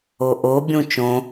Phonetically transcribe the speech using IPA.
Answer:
o ʔ o bʲ ũ t͡ʃ õ

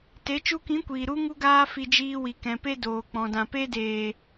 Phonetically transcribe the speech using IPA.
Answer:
t e˨˦ t͡ʃ u˧ k ĩ˨˦ kʷ iː˨ ɾ u˦ ŋ u˦ ɡ aː˦ f i˧ d͡ʒ iː˧ w i˨ k ɛ̃˨ p e˧ d oː˨ k͡p ɔ̃˨ d ã˨ p e˧ d eː˨

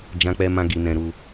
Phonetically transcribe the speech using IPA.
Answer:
d͡ʒ ã˧ k͡p ɛ˧ m ã˧ ɡ i˧ n ɛ̃˧ ɾ u˧

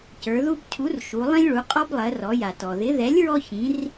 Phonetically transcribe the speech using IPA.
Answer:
c ə˞˩˧ ð u˦ b cʰ u˨˥ r ʃ u˩˧ lˠ ĩ˦ lʲ ɭ u˩˧ qʼ ɔ˦ b lˠ ɜ˩˧ r ɔ˩˧ j a˩ t ɔ˩ ð ɪ˨˥ ð ɛ˨˥ lʲ ɹ ɔ˦ ç ĩ˨˥ r

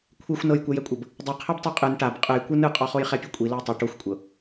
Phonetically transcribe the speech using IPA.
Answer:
kʷʰ e xʷ n ɤ j kʷ ɛ j ɛ kʷʼ ɤ b | dˤ i qʰ ɛ b tˤ e qʼ ɯ n ʈ a b qʼ ɯ j kʷ ɯ n ɯ qʼ ɔ χ o j χ ɛ pʲ ɛ kʷʼ i l o j tˤ ɤ ʈ o xʷ kʷʼ ɤ

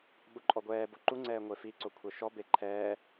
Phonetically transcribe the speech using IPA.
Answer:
ɓ u ǃʼ ɔ ɡʷ ɛː b o ǃ u ŋ͡ǀ ɛː ŋʷ e f i ǀ o kʷʰ ɛ ʃ ɔ b e ǃʰ ɛː

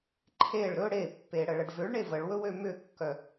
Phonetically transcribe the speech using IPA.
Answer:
ǃʰ e ɭ ɾ ɵ ɽ e pː e ɽ ə ɭ ə ɖ v ʏ ɭ ɳ e v ə ɭ w ɵ w ø m ʏ kː œ

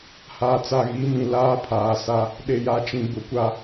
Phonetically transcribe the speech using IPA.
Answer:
h aː˨ t͡s a˨ ɣ i˨˦ m ĩ˨ l aː˦ pʰ aː˨ s a˦ | ɗ e˨ j a˨ t͡ʃ ĩ˨ b ʊ˨ kʷ a˦

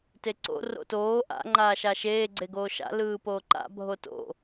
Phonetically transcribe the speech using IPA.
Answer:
t e ǀ o̰ r o̰ t oː ʔ a̰ ŋ͡ǃ aː ʃ a ʃ eː ɡ͡ǀ e ɡ oː ʃ a̰ l ɯː p oː ǃ a̰ bʱ o t o̰

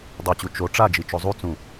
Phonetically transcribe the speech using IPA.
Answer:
dˤ o t͡ɕ u t͡ʃ o ʈ͡ʂ a d͡ʒ i t͡ʃ o zˤ u t͡s ũ

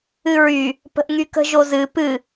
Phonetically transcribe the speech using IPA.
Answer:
ɨ ɹ y | p ə̤ ʔ ŋ y k ə̤ ʒ o z ɨ p ɨ

